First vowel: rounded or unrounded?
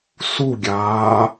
rounded